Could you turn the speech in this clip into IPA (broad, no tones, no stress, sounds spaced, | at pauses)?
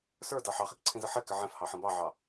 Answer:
s ə˞ d ɑ ħ ɑ χ i k ǀʰ ĩ z ə ħ ɛ k ɪ ʕ ɛ̃ f h ɑ ħ ə̃ b ɑ ʕ ɑ